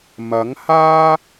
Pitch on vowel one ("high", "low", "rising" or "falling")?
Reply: rising